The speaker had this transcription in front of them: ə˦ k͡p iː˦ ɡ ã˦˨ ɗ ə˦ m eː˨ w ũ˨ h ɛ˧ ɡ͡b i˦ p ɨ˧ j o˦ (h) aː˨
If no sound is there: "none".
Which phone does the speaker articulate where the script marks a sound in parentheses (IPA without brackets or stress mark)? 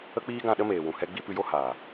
h